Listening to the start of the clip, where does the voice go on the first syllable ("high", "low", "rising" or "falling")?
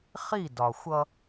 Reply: falling